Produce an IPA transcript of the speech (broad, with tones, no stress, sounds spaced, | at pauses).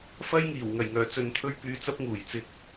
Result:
f ɐ˥ j ŋ iː˨˩ w ŋ ɐ˨˩ j ŋ œː˨˩ t͡s ɵ˨˧ n t̪ʰ ɵ˥ ɥ p yː˧ t͡s ɐ˥ p̚ ŋ uː˨˩ j t͡s ɪ˧ k̚